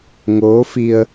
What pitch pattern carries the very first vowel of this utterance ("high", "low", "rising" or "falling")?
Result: rising